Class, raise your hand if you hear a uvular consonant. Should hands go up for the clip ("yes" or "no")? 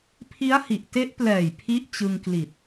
no